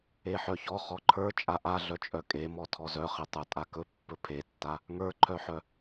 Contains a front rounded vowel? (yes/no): yes